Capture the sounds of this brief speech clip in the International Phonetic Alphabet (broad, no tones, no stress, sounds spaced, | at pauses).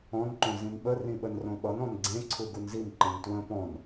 ɔ̃ n ǃ õ z ĩ n ɓ ə r ĩ ɓ ə n r õ ɓ ʌ n ɔ̃ n ɡ͡ǀ ẽ ǀʰ u ɡ u n z i n ǃ ẽ n t w ə̃ p ɔ̃ n